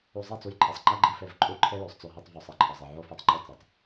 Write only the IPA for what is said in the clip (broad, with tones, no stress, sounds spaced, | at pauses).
u˧ zˤ i˦˨ t͡s u˧ j ǃʰ e˨ sˤ ŋ͡ǃ æ˦ ɡ͡ǃ i˧ f e˧ v ǃʼ u˦ ǃʰ e˦ j o˨ sˤ t͡s o˧ ɦ i˧ tˤ v u˨ sˤ e˨ ǃʰ ɒ˨ zˤ e˨ ʕ o˦ f e˧ tˤ ŋ͡ǃ u˦˨ t͡s i˨ tˤ